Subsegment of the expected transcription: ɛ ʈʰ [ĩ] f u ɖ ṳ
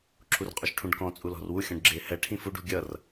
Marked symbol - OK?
yes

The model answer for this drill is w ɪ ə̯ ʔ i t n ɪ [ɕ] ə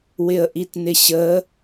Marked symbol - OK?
yes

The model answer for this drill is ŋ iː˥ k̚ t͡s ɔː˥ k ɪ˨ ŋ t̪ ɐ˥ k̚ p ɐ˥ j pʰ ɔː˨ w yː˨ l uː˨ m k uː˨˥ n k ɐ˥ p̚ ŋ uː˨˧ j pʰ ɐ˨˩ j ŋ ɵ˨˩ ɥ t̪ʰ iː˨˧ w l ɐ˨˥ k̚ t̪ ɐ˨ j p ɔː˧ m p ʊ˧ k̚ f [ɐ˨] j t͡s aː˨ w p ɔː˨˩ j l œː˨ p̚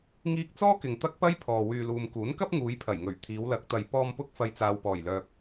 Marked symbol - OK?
yes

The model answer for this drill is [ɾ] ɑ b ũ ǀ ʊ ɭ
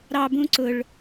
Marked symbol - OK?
yes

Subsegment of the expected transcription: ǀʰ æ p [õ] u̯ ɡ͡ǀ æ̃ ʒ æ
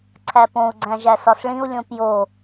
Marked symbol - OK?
yes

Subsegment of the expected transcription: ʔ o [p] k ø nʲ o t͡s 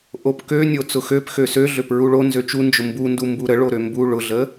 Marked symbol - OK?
yes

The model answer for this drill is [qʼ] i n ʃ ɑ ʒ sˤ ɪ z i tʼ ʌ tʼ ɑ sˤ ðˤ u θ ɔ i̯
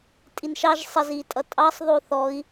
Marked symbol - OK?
no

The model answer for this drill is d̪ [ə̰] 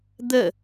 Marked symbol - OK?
no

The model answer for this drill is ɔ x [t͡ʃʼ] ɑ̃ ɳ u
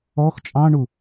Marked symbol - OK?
yes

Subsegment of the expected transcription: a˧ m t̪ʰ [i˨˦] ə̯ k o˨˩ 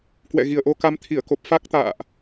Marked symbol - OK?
no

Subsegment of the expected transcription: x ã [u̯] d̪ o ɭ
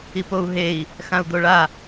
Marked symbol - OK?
yes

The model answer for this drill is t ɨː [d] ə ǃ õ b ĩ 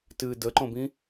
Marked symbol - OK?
yes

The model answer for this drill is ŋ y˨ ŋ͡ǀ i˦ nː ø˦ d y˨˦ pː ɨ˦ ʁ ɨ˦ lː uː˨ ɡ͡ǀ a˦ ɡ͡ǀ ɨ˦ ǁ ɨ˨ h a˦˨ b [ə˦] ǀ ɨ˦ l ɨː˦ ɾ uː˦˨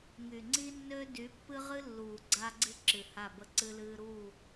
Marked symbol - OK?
yes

